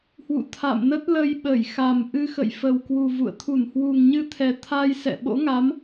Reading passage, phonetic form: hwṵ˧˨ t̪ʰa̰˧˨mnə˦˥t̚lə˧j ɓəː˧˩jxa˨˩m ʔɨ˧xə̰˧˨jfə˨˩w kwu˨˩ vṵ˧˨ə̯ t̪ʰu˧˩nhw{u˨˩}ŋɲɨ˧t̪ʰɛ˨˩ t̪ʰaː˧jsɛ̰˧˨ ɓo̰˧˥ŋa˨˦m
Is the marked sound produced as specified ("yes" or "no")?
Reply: yes